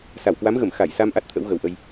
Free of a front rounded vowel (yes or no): yes